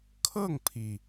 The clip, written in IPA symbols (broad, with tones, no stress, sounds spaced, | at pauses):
kʰ ɤ˥˩ ŋ pʰ i˩